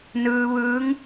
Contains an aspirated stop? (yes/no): no